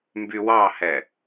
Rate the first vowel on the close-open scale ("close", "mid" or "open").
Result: close